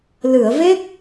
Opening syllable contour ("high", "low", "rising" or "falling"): low